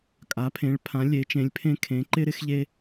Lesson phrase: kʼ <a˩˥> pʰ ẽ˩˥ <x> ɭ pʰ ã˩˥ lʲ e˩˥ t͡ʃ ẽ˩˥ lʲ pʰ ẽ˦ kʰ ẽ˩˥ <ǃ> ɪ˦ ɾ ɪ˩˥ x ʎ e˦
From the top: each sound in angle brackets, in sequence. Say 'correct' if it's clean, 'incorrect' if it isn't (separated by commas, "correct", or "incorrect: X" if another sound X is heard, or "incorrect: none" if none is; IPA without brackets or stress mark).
correct, incorrect: none, correct